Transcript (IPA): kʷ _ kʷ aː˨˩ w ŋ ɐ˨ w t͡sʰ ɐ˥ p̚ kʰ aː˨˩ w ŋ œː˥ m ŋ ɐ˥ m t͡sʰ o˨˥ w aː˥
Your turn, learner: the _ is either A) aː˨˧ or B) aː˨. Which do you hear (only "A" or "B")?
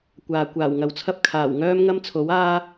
B